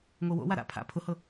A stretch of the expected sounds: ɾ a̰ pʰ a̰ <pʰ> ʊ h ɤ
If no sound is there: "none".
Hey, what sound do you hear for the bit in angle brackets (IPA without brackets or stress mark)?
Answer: pʰ